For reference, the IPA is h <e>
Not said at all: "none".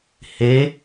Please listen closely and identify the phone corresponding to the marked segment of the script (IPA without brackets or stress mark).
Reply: e